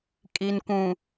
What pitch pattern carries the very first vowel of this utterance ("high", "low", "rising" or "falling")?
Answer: low